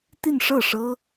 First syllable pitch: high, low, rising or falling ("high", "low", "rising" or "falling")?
falling